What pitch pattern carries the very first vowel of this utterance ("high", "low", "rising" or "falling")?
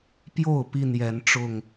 falling